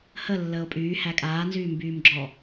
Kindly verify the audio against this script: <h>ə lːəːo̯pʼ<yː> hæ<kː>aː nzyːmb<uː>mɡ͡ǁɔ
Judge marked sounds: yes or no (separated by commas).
yes, yes, no, no